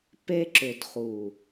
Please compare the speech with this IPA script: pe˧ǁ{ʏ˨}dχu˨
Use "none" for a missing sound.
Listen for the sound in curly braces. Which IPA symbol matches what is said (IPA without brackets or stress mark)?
ʏ˨